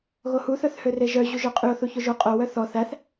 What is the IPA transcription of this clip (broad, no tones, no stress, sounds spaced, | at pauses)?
ɣ o h u θ œ θ h ø r e ʒ œ ʑ u ʒ œ qʼ y o̯ θ u ç o ʒ o qʼ o w œ θ ɔ θ æ θ